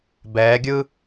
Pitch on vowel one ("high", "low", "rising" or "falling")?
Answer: rising